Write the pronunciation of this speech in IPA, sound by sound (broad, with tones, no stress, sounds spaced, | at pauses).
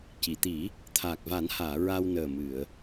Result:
c i˨˩˨ t̪ i˨˩˦ | t̪ʰ aː˨˩ k̚ v a˨˩˦ n h aː˨˩˨ ɹ a˧ w n əː˨˩ m ɨ˨˩˨ ə̯